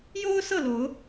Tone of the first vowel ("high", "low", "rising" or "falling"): high